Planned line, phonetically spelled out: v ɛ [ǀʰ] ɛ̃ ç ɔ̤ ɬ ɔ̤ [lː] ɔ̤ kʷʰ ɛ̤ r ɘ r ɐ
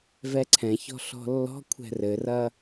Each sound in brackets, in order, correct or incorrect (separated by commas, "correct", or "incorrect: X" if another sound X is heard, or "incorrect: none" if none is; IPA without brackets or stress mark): correct, correct